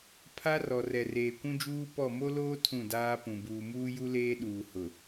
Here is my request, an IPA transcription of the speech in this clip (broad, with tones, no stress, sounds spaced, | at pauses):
pʰ a˦ r ɔ˨ r ɛ˨ r eː˨ kʷ ũ˦ d͡ʒ uː˦ p ɔ˦˨ m o˦ l oː˦ tʰ ũ˦˨ d aː˦ p ũ˨ b uː˨ m uː˦ j u˦ l eː˦ ɗ uː˨ h ʊ˨